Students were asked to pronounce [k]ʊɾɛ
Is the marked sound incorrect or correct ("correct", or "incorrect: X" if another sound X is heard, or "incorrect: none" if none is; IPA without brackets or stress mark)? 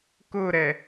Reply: correct